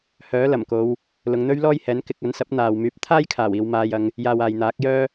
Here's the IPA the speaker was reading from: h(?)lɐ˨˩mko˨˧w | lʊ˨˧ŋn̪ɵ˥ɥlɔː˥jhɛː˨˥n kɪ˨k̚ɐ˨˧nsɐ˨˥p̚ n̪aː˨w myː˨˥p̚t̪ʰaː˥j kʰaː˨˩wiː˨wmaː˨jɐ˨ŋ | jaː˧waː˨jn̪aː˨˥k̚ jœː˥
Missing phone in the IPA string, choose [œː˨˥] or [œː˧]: œː˨˥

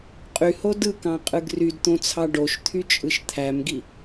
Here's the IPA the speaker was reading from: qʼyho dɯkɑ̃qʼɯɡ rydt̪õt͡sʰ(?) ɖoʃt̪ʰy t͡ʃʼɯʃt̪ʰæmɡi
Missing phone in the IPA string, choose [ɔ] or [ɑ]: ɑ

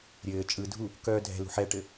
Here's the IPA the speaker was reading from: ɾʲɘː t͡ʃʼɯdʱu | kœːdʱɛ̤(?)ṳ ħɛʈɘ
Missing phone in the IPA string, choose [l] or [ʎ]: l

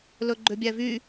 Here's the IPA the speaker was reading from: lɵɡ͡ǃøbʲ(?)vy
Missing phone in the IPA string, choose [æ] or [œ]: æ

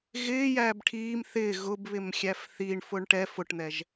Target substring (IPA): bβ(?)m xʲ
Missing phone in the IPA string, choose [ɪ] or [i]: ɪ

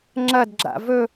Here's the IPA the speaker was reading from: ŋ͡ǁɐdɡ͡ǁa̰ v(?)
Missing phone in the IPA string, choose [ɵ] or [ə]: ɵ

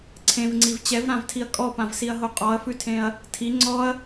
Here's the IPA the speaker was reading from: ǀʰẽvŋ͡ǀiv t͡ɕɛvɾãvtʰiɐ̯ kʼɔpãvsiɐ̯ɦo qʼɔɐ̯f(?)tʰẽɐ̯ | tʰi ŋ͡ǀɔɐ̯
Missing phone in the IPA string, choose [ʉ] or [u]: ʉ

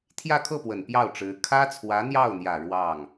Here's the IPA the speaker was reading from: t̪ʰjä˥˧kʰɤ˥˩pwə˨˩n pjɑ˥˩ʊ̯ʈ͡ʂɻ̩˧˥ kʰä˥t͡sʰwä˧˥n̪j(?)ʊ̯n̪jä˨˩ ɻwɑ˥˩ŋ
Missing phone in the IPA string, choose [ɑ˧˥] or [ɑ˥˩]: ɑ˥˩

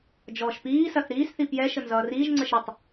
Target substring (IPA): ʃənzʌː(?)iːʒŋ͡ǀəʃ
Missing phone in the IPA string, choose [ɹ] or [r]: r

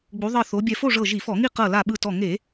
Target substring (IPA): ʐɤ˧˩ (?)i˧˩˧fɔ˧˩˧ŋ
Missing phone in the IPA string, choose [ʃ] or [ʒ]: ʒ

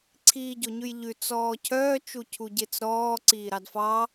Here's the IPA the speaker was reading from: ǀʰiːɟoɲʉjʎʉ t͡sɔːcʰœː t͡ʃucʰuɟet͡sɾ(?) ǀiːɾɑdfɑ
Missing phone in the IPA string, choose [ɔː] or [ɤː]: ɔː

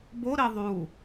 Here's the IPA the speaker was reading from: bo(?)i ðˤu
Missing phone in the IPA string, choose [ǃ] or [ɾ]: ɾ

